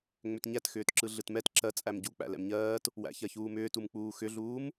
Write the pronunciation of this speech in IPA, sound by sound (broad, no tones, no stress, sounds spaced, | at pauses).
ŋ͡m ʏ t ɲ æ t x ʏː t ǁ ɯ ɮ ɯ t m ɛ t ǁ ɜ t͡sʼ æ m ɟ u k͡p æ̰ l ɛ̰ m ɲ ɜː t | w æ̰ ç ɜ ç uː m ʏː t u m k͡p uː x ʏ ɮ uː m